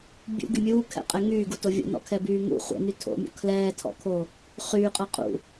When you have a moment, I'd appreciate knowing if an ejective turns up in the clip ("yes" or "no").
yes